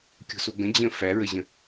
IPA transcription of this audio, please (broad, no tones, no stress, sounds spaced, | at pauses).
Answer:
kʲ o̤ s o ɡ ə̃ d͡ʑ ə̃ f æ ɹ ə ʑ ə̃